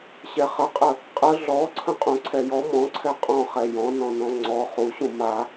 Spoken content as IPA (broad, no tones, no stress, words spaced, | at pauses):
ɕɛχəqʼə | qʼə ɮɔ ǀʰə̃qʼũǀʰɛjɔ mɔ̃ǀʰɛ qʼɔ̃χɛ jɔ̃nɔ̃ nɔ̃ŋ͡ǀɔ χuɕũ ma